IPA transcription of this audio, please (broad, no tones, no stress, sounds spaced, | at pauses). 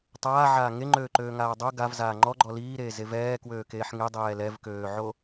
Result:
tˤ aː ʕ aː ŋ e ŋ͡ǃ øː ǃ øː ŋ aː dˤ o ɡ a v z aː ŋ͡ǃ ɔ ɡ͡ǃ ɔ l iː ɾ eː z e v ɛː k w øː k eː ħ ŋ e dˤ ɛː l ɛ v k øː ʕ o